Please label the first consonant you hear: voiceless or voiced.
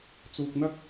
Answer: voiceless